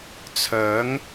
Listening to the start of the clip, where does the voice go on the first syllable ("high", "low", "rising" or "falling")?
rising